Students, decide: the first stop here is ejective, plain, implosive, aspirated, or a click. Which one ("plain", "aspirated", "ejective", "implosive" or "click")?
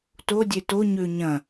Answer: plain